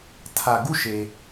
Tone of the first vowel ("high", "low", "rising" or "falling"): low